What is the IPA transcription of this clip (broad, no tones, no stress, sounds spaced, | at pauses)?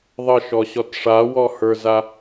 ðˤ ə ʃ ɔ ɕ ɔ t ʂ a w ɔ h ə˞ z a